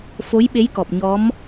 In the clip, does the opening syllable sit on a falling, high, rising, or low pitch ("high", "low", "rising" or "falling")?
rising